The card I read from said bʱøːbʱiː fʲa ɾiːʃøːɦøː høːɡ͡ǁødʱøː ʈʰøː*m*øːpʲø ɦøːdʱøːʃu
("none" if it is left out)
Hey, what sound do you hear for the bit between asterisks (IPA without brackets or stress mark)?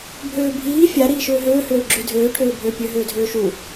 bʱ